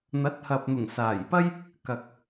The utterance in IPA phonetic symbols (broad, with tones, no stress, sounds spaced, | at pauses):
n̪ ɐ˨˥ t̚ h ɐ˨ p̚ n̪ ʊ˨˩ ŋ s aː˨˩ j p ɐ˥ j | k ɐ˨ k̚